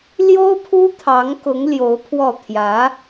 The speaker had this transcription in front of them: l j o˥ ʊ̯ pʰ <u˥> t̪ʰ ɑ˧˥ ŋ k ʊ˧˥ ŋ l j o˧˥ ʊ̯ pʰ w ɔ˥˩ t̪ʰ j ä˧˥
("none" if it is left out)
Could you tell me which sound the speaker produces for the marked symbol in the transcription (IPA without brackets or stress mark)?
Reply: u˥